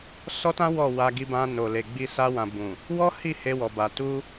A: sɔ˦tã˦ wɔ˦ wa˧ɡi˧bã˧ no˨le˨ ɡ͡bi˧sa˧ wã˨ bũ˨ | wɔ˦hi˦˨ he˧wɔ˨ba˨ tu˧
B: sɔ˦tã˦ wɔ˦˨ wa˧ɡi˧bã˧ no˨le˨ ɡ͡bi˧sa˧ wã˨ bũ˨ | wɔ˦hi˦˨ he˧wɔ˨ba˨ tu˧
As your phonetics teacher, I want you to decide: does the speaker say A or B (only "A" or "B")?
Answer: B